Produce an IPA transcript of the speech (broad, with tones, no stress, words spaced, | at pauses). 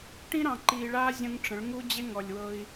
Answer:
ʈĩ˦ɾɑ̃˨ ǃiː˨ɭaː˦ zʲə̃˦ŋʈ͡ʂə̃˨˦ɭ ŋu˦ d͡ʑe˦ ŋɔ˨lʲwɤ˦i̯